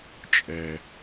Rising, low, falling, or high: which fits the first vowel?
low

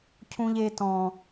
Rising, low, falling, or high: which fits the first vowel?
high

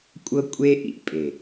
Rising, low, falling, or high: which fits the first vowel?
high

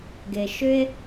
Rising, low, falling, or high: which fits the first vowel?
low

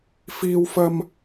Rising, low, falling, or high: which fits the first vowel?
high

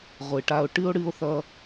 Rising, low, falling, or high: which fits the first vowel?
low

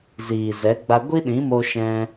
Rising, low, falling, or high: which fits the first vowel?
low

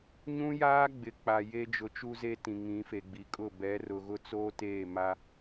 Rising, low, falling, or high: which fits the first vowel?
high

